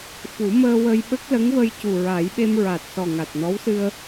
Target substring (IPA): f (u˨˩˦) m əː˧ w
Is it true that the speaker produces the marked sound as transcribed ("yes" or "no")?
yes